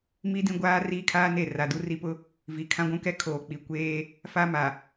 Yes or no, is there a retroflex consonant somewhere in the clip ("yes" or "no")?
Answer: no